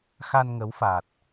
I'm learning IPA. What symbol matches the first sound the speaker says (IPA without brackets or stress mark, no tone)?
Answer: x